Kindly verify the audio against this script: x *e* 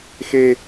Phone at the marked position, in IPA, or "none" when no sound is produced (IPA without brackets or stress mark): e